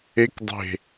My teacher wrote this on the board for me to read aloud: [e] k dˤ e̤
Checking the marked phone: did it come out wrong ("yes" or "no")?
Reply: no